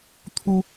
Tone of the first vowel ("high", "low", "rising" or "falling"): high